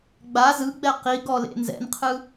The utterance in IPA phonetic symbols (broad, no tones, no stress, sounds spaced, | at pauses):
ɡ͡b a z ɯ ɡ͡b ɛ q i ɡ ɔ l ḛ n z ɛ̰ n qʰ ɯ